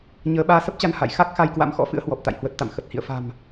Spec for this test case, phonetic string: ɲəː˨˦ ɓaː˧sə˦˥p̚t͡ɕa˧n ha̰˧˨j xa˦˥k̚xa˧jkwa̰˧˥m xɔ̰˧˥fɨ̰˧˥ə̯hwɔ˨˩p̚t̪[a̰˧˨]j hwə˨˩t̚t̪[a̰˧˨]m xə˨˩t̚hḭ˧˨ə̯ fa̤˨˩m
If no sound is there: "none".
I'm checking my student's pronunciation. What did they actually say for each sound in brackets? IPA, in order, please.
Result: a̰˧˨, a̰˧˨

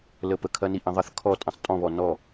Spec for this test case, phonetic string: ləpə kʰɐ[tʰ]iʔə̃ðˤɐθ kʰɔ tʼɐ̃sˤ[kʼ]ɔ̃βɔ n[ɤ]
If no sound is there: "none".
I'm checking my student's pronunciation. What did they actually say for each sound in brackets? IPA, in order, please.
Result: n, tʼ, ɔ

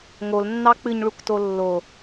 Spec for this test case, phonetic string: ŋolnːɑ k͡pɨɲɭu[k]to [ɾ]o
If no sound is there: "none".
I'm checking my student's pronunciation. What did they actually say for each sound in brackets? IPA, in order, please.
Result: k, lː

